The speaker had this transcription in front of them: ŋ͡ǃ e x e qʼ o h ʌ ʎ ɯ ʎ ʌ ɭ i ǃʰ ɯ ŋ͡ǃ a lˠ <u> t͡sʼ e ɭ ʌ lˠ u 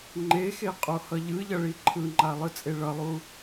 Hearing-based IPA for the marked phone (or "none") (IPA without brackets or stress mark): ɯ